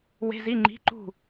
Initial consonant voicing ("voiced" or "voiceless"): voiced